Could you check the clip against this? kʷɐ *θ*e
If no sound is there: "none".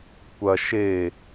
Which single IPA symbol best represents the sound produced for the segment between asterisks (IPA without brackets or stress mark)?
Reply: ʃ